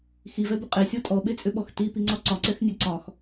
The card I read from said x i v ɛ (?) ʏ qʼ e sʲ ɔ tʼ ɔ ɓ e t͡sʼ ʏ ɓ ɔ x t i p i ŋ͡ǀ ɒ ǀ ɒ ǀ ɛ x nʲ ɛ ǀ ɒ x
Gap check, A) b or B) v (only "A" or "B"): A